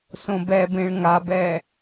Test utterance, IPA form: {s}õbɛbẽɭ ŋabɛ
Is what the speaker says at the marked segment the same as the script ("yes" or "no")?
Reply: yes